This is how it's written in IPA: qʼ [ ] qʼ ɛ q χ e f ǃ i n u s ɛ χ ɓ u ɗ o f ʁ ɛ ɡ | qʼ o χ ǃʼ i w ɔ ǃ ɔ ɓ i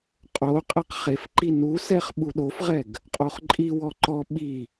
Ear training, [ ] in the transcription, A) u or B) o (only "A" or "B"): B